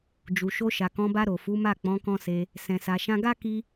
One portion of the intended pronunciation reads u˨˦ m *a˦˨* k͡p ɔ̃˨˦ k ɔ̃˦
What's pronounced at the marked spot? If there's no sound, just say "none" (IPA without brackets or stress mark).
a˦˨